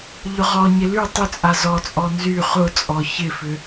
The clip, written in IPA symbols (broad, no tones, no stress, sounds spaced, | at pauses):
ʎ ʊ ʁ ɔ ɲ ɪ l y tˤ ʏ t͡sʼ a z ɔ t͡sʼ ɔ n z y χ ʊ t͡sʼ ɔ ç ɪ f ʏ